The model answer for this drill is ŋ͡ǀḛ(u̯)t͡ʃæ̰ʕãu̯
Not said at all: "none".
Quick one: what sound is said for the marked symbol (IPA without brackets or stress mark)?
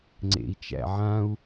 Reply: i̯